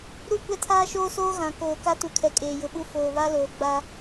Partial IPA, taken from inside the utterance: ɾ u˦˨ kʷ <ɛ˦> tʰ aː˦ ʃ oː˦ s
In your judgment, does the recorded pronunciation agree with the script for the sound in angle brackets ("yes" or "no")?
yes